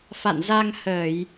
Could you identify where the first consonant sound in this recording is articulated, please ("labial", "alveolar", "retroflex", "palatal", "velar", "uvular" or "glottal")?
labial